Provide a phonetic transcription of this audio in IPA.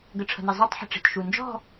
ɡ ə˨ ʈ͡ʂʰ ə̤˨ n i˨ zˤ ø˥˧ tˤ ħ ə̤˨ ʈ͡ʂ i̤˨ t ʃ u˨ n d͡ʒ ɔ̤˥˧

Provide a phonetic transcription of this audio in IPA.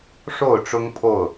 ʂ o˥˨ ʊ̯ ʈ͡ʂ ʊ˦ ŋ pʰ o˥˨ ʊ̯

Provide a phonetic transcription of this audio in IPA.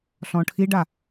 ɬ ɔ̃ ʈʰ i ɖ a

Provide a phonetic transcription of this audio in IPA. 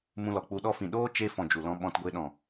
m ũ˧ l ɔ˨ k͡p u˧ ɗ ɔ˦ f ĩ˨ ɗ oː˦ t͡ʃ e˧ f ɔ̃˨ d͡ʒ u˨ l ɔ̃˧ ɓ ɔ̃˧ t ɡʷ e˧ ɗ ɔ̃˨

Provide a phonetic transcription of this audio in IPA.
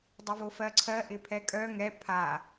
dˤ œ v o f ɜ ǀʰ ɜ ʔ ɪ pʰ ɛ kʼ œ ŋ ɛ pʰ a

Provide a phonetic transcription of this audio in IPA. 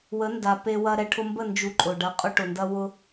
w ə˨˦ n d a˨ p e˧ w ɐ˧ ɾ ɛ˨ ʈʰ ʊ˧ m b ə˦˨ n d͡ʒ u˧ ǃʼ ʊ˨ ɖ ɐ˧ qʼ ʊ˦ ʈ ʊ˨ n d ɐ˦ w ʊ˦

